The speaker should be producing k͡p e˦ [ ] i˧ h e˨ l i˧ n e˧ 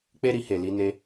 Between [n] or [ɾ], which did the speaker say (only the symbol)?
ɾ